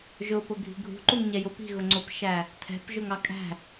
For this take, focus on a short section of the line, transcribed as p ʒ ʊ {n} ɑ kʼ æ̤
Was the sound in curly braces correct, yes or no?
no